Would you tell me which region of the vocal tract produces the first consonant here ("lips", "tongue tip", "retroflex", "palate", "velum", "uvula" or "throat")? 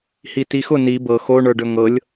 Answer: throat